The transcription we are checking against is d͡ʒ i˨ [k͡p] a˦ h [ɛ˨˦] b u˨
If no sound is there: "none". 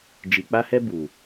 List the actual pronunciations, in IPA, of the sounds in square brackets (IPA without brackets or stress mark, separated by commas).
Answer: k͡p, ɛ˦